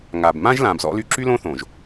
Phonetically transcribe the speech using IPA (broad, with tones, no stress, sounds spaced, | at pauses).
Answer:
ŋ a˨ b m ã˦ ʒ l ã˨ b z ɔ̰˦ l y˦ ǁ y˦ l õ˦ θ õ˨ ʒ